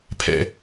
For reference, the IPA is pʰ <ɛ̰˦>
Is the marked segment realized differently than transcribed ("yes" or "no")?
no